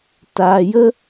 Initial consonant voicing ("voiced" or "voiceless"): voiceless